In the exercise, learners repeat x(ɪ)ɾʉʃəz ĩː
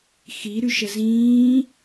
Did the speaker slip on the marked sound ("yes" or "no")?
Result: yes